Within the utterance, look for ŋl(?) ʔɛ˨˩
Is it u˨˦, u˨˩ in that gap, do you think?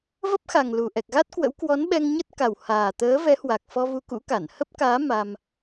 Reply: u˨˩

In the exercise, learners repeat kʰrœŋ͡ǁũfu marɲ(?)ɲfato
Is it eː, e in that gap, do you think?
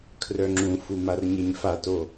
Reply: e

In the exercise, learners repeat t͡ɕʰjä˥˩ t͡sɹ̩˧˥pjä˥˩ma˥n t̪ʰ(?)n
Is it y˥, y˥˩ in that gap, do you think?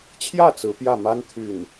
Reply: y˥˩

